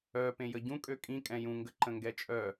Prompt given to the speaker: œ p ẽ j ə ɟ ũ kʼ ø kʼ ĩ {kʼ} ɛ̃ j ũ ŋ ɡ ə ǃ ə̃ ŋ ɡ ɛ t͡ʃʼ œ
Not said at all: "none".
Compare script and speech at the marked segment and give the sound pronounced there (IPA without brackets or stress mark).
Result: kʼ